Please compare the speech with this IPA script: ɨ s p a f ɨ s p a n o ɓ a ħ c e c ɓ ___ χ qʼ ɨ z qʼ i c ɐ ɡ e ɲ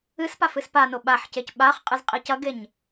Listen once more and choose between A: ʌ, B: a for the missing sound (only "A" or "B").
B